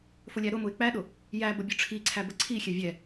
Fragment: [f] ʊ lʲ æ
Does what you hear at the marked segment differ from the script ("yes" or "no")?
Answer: no